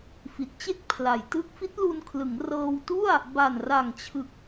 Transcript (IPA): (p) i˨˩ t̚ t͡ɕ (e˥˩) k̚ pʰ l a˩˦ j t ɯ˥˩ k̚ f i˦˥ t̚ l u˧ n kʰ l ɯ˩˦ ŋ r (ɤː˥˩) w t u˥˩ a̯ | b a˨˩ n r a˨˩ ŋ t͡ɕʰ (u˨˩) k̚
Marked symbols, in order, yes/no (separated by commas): no, yes, no, no